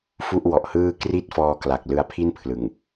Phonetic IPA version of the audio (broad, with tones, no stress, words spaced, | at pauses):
fu˥˩ʔwɔ˨˩ʔhɯː˥˩ kri˥˩t̚fɔː˧kla˨˩k̚ lɯ˧a̯pʰi˥˩npʰlɯ˨˩ŋ